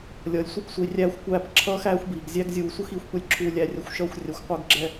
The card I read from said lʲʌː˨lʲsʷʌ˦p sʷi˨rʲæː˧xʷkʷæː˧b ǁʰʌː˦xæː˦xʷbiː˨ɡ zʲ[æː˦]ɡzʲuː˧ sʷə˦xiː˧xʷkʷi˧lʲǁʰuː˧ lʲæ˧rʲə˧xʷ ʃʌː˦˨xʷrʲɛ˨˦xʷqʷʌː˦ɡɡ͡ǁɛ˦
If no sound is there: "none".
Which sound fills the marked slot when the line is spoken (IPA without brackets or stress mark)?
æ˦